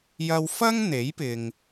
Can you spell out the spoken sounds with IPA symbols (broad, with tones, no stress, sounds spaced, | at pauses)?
j ɐ˧ w f ɐ˥ ŋ n̪ e˨˥ j p ɪ˨ ŋ